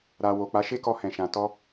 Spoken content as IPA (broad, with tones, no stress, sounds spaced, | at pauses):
ɾ a˨ w o˨ k͡p a˨˦ ʃ e˦ k ɔ˧ h ɛ̃˨ ʃ ã˨ t ɔ˧